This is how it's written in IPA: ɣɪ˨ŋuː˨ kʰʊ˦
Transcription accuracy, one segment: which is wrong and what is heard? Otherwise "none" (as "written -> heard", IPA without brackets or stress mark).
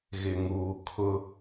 none